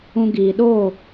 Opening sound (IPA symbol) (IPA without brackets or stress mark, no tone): ũ